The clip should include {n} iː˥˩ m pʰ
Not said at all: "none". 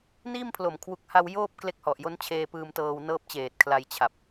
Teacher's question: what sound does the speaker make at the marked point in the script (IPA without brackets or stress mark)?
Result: n